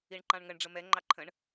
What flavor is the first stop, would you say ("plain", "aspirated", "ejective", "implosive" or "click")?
click